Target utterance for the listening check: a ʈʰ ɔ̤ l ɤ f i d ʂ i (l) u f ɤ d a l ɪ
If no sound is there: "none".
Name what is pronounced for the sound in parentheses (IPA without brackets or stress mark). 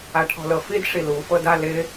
l